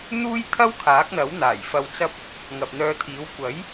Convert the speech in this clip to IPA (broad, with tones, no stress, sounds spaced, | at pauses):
n̪ uː˥ j t̪ʰ ɐ˥ w kʰ aː˨˥ k̚ n̪ ɐ˨˥ w n̪ aː˨˩ j f ɐ˧ w t͡s ɐ˥ p̚ | ŋ ɐ˨ p̚ n̪ œː˧ t̪ʰ iː˨˥ w kʷ ɐ˨˥ j